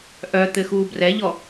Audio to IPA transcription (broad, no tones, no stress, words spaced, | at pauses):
ʔœ t̪ɘxuːbrɛʎɔ